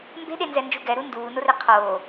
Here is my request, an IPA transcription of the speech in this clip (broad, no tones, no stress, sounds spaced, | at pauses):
m b e̤ ɗ e n z ɛ n d͡ʒ u ɡ ɛ ɾ u n d uː n o r e qʰ oː